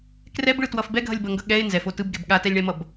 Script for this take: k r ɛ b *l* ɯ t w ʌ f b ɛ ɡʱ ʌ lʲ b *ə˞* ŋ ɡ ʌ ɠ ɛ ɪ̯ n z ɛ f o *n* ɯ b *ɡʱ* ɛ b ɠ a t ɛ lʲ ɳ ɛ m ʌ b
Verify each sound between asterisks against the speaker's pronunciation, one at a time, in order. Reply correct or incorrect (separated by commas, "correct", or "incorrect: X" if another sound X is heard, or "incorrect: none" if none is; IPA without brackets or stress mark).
incorrect: ɭ, incorrect: ʌ, incorrect: t, incorrect: ɡ